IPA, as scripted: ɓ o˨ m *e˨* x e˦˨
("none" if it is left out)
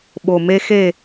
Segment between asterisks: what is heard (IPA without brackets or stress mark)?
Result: e˦